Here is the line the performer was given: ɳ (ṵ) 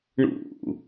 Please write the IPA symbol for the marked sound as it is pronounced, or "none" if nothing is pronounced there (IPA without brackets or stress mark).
ṵ